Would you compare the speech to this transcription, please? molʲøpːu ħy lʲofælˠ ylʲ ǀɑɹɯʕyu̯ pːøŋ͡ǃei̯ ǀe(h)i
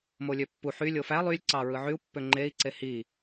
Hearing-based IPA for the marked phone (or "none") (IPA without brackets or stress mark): h